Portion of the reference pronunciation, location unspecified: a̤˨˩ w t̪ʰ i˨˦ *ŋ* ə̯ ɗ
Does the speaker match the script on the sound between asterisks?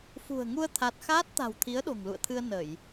no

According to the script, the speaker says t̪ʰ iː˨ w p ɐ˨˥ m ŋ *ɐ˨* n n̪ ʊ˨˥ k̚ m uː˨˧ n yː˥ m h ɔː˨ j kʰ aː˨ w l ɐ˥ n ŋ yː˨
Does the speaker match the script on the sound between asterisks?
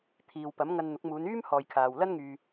no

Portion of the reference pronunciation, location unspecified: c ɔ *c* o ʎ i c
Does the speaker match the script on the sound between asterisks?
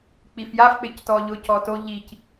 no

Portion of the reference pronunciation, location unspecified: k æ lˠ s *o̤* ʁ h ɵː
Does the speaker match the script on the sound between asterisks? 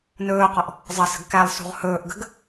no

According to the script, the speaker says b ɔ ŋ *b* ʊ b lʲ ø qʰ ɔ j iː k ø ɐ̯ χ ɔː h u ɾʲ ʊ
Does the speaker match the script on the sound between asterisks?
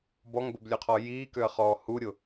yes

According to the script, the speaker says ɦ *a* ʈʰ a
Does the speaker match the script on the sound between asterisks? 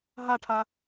yes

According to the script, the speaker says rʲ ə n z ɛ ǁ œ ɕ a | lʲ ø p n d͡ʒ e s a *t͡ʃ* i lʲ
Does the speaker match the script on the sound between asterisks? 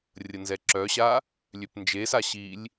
no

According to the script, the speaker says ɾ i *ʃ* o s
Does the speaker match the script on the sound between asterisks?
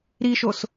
yes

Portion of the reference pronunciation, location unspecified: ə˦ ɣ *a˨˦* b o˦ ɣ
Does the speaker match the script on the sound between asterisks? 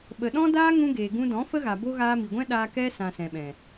no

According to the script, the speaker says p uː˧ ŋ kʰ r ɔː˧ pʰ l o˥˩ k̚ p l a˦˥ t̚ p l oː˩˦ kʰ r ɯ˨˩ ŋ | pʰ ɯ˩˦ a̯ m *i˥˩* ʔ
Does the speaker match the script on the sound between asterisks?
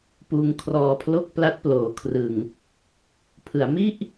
yes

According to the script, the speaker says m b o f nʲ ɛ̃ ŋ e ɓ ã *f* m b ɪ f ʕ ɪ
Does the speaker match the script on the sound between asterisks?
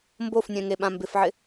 no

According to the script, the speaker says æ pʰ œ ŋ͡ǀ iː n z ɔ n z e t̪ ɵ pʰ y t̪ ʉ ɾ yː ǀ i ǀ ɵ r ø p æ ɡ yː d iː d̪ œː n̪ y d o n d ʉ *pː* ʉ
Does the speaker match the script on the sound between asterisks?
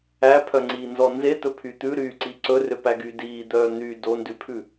no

